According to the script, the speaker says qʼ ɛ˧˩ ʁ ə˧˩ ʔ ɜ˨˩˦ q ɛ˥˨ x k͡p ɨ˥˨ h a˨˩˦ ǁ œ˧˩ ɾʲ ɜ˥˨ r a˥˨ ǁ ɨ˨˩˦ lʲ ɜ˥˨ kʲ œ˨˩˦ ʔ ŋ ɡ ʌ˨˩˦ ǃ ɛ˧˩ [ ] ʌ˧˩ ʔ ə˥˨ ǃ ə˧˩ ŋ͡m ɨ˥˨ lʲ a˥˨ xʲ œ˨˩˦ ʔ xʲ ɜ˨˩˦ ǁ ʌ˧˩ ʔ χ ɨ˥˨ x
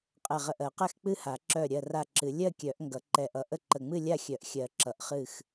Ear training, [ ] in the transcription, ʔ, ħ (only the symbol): ʔ